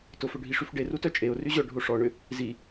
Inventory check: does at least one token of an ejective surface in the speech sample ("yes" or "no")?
yes